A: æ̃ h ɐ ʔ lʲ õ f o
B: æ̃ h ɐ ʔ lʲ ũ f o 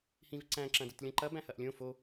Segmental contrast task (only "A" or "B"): A